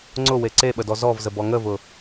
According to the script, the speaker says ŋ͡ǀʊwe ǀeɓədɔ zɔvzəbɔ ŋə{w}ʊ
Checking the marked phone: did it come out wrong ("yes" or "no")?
yes